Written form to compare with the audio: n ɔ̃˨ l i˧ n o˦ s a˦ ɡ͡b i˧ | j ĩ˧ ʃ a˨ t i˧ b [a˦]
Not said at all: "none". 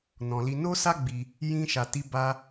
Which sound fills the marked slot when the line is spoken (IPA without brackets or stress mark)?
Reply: a˦